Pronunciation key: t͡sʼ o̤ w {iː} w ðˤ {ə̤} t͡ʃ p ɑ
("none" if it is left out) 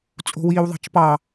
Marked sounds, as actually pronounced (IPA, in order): iː, ɑ̤

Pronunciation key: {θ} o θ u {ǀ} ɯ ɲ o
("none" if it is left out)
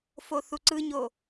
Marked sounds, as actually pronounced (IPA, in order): f, ǀ

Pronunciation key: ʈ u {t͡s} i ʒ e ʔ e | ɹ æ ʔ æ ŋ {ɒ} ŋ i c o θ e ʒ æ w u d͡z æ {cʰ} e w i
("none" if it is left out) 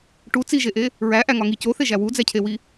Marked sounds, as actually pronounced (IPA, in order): t͡s, ɒ, cʰ

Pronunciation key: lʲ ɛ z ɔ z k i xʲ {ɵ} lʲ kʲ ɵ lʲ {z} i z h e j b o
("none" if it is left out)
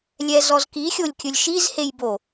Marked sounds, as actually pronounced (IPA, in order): o, ʃ

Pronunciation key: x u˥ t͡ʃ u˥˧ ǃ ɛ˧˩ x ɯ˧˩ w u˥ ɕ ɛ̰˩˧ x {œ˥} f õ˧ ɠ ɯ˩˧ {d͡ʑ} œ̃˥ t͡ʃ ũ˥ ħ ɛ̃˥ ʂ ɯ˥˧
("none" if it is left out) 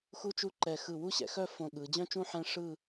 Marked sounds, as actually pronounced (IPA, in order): œ˥, d͡ʑ

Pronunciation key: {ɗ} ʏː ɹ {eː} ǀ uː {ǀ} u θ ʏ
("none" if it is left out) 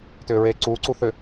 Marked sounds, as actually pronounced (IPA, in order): t, eː, ǀ

